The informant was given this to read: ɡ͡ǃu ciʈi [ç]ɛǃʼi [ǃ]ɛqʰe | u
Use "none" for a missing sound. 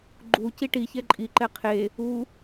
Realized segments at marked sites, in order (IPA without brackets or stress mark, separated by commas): ç, ǃ